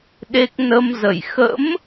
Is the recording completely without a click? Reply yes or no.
yes